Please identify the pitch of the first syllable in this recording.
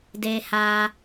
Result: high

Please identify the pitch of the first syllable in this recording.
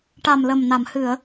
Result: low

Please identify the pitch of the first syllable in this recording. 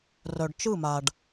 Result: low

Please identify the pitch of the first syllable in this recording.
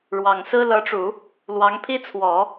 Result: low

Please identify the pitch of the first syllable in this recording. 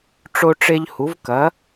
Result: high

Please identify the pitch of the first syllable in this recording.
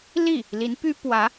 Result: falling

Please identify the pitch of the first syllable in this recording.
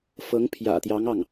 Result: rising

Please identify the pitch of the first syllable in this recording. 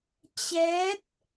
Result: rising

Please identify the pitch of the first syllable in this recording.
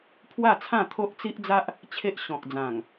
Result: falling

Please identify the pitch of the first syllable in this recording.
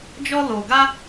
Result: high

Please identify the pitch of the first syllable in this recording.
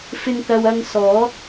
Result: low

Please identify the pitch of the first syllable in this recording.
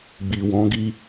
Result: low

